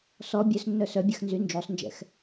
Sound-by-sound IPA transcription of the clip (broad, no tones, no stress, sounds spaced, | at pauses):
s ɔ bʲ œ s nː œ s œ bʲ a x n z y n d͡ʒ o sˤ n d͡ʒ ɛ̰ x